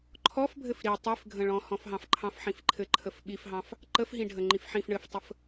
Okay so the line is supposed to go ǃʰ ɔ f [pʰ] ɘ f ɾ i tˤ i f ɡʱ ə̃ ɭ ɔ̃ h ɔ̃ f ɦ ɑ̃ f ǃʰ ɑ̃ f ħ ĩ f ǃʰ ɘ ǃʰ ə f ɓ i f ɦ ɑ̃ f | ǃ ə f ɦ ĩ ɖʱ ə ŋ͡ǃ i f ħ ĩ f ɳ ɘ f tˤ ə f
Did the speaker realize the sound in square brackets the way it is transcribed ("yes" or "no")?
no